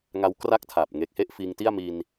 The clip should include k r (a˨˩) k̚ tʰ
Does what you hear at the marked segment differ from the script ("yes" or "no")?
yes